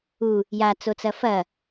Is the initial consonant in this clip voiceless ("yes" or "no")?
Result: no